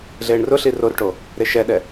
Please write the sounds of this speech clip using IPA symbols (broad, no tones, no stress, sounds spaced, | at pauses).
ɮ eː ɳ r ʊ ɬ i r o r ʈ o | ɾ e ʃ ɛ ɗ ɛ